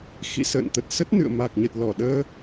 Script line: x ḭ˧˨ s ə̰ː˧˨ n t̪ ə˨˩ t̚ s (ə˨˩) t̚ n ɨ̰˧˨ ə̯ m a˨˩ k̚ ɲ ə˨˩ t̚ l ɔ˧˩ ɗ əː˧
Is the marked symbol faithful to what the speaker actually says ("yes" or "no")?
no